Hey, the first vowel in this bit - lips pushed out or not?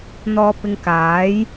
yes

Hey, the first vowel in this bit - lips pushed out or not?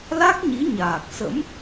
no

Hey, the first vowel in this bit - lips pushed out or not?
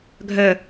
yes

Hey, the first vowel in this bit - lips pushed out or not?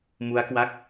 yes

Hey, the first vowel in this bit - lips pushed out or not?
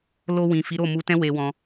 yes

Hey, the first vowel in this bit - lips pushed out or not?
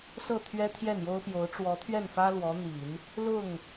no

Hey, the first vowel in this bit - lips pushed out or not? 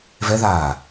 no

